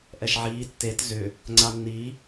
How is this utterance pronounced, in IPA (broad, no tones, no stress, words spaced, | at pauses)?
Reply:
ʔɛʃʕiː tːet zʏ | ŋ͡ǀanːi